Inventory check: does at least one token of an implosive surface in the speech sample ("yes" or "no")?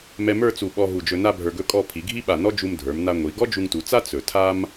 yes